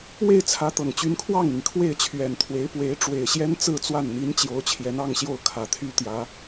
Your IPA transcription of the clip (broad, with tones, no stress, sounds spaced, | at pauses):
w e˥˩ ɪ̯ t͡sʰ ä˧˥ t̪ ɤ˨˩ ŋ t͡ɕ y˧˥ n kʰ w ɑ˥˩ ŋ n̪ i˩ ŋ kʰ w e˥˩ ɪ̯ t͡ɕʰ ɥ ɛ˨˩ n t̪ʰ w e˧˥ ɪ̯ p w e˧˥ ɪ̯ ʈ͡ʂ w e˨˩ ɪ̯ ɕ j ɛ˥ n t͡s ɹ̩˥˧ t͡s w a˥˩ n n̪ i˧˥ n t͡ɕ j o˧˥ ʊ̯ t͡ɕʰ j ɛ˧˥ n ɑ˥˧ ŋ ɕ j o˥˩ ʊ̯ kʰ ä˨˩ t̪ʰ y˥ t̪ j ä˧˥